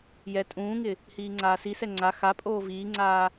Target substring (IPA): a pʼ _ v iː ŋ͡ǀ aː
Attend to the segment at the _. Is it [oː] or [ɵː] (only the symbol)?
oː